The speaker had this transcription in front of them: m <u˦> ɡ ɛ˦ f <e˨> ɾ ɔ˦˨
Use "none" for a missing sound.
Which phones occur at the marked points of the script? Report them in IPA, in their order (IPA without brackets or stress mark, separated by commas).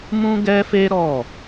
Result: ũ˦, e˦